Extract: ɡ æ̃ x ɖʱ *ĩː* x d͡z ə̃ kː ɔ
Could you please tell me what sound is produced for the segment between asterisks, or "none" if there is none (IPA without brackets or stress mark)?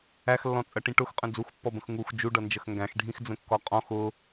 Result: ĩ